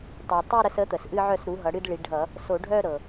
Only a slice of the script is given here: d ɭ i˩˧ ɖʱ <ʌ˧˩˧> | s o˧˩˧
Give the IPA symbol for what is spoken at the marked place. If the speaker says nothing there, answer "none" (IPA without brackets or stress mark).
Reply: ʌ˧˩˧